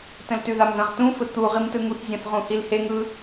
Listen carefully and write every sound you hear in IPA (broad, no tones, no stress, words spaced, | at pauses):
tə̃ltʉðamðə̃ʁ tũfɘ t̪u ʁimtɯŋuθzʲə̃θ ʁũhilheŋɯ